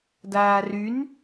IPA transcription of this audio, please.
d aː r y n

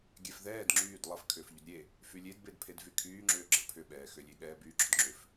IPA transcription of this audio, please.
ɡʲ ɛ f ð ɛː d ŋ͡ǁ yː d lˠ ə f kʰ ʏː f ʎ ʏ d ɾʲ e | f y lʲ e d b e d pʰ e d v y kʰ yː ŋ͡ǁ ʏː ɡ͡ǁ ə pʰ ʏ ɓ ɛː x ʏ lʲ e ɠ ɛː b yː ɡ͡ǁ ʏ d ŋ͡ǁ ʏ f

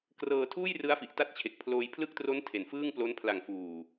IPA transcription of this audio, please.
k r ɤː˧ tʰ uː˥˩ j r ɯ˦˥ a̯ f i˨˩ ʔ t a˦˥ t̚ t͡ɕʰ e˨˩ k̚ pʰ l oː˧ j pʰ l ɯ˥˩ k̚ t r o˦˥ n tʰ e˩˦ n f ɯː˥˩ ŋ p l o˦˥ n pʰ l a˨˩ ŋ f uː˨˩

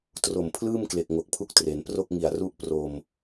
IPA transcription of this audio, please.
t r o˨˩ m pʰ l ɯː˥˩ m k l e˨˩ k̚ ŋ o˨˩ k̚ pʰ u˦˥ k̚ t r e˩˦ n p r o˥˩ k̚ ŋ i˨˩ a̯ r u˦˥ ʔ p r o˧ m

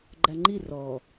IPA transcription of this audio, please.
ɡ͡ǃ æ ŋ͡ǃ i r ɔ

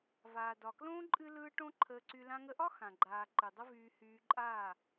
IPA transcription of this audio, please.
v aː˨ d ɒ˨ k l õː˦ ǃʼ ɨ˦ l ɯː˦ ʈ õ˦ ǃʰ əː˧ ǀ y˧ l ã˧ ŋ ə˧ ʔ ɒ˦ x ã˨ ɡ͡ǃ aː˨ ǃ ɨ˨ dˤ ə˦ v yː˧ h yː˧ ǃʼ aː˦˨

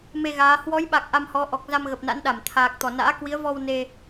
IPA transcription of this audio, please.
m e˧ ɣ aː˨˦ h w ɔ˨˦ j ɓ a˨˩ k̚ ʔ a˧ m h ɔ˨˦ ʔ ɔ˨˩ k̚ z a˧ m ɣ ə˨˩ p̚ n a̰˧˥ n ɗ a˧˩ m t̪ʰ aː˨˩ k̚ t̪ ɔ˧˩ n a̰ː˧˥ k w i˨˦ ə̯ v ɔ˧ w n e˧

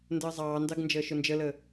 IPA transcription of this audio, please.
n d əː zˤ ɑː n d ɑ ɡ n d͡ʒ əː ʃ ʊ n d͡ʒ ə l ə

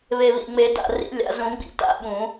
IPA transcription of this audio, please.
β e˨˩ β ḭ˨˩ ŋ͡m e˨˩˦ d a̰˨˩ r ḭ˨˩˦ lʲ a̰˨˩˦ z ũ˨˩˦ ɡ͡b ḭ˨˩ t a̰˨˩˦ ɓ ũ˨˩˦

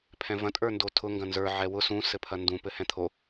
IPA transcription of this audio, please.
pʰ ɛ̃ v ɐ̃ tʼ ə˞ n d o tʰ ʊ ŋ ɡ ɐ̃ n z ə˞ ʕ ɛ w ʊ s ũ s ɘ pʰ ɐ n d ũ p ɘ h ɛ̃ t̪ʰ o

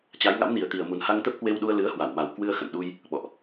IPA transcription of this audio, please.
t͡ɕ a˨˦ j ŋ a̰˧˥ m n i˨˩ ə̯ t̪ i˨˩ ə̯ m u˨˩ n h a˧ ŋ t̪ ə˦˥ p̚ k w e˧ w ɗ u˧ ə̯ l ɨ˨˦ ə̯ h w a˧˩ w m a˨˩ w k w ɨ˧ ə̯ x ə̰˧˨ n ɗ u˧ j | ɓ ɔ̰˧˨ ʔ

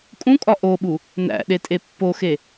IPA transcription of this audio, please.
kʼ ũ kʼ ɒ ʔ o ɓ u | n æ̰ ɗ e tʼ e pː o x e

